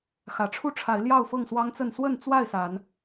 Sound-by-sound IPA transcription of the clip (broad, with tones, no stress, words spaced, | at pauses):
xä˨˩ʈ͡ʂʰu˦ʈ͡ʂʰa˨˦ɪ̯ ljɑ˥˨ʊ̯fɤ˥˨ŋswɑ˦ŋt͡sə˥˨n swə˥˨nt͡swa˥˨ɪ̯sa˨˦n